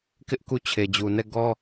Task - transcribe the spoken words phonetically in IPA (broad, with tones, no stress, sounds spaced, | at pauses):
k ɪ˦ ʔ k u˦˨ t͡ɕʰ e˨ d͡ʑ u˨ n ɛ˦˨ ɡ ɔ˦